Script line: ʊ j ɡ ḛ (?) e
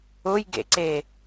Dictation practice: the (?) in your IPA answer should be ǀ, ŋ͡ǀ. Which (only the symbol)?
ǀ